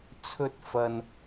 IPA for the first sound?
t͡sʰ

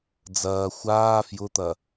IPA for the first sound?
d͡z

